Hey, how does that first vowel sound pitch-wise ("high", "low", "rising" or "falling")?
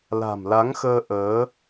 low